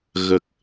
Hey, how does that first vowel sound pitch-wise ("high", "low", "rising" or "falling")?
low